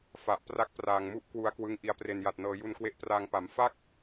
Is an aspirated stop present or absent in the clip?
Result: absent